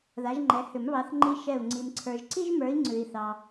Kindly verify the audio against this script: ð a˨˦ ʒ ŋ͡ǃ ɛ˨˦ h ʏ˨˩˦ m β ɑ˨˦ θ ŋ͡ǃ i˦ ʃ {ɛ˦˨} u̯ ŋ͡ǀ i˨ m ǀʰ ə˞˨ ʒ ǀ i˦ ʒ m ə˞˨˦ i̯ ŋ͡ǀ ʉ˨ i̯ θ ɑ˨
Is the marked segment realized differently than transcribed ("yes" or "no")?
no